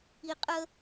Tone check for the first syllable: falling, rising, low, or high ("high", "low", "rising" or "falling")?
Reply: low